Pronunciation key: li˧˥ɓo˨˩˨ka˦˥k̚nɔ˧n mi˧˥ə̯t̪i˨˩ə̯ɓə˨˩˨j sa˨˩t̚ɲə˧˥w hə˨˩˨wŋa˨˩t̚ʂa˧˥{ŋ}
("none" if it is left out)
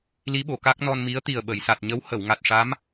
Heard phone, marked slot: m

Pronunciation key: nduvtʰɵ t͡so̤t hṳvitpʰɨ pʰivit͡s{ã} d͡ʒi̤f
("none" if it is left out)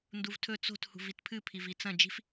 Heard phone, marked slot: ɐ̃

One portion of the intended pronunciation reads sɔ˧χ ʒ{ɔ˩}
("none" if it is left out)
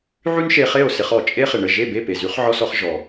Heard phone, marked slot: ɔ˩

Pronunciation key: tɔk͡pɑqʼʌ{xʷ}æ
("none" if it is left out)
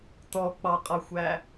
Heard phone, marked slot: xʷ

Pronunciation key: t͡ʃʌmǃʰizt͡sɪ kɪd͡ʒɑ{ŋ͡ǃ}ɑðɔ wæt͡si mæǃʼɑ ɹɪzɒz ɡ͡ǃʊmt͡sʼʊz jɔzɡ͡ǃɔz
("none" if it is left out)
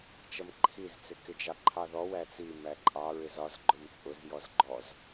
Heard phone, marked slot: ǃʰ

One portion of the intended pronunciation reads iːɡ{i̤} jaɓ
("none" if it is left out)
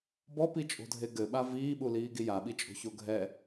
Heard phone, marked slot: i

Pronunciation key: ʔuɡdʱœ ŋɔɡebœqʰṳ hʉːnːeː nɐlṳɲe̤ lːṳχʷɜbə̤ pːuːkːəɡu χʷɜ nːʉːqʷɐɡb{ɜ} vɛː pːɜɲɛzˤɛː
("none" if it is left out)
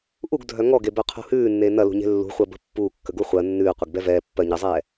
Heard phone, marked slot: ɛ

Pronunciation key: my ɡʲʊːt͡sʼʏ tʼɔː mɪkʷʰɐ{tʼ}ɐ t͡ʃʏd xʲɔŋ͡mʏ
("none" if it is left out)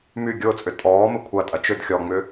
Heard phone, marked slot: tʼ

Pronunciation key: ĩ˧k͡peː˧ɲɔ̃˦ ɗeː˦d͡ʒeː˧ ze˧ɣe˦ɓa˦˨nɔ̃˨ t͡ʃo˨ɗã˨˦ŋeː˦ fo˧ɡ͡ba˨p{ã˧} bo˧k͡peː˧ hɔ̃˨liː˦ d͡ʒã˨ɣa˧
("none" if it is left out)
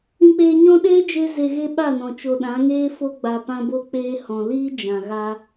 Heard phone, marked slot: ã˧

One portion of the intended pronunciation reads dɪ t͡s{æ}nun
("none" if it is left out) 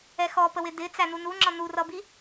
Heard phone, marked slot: æ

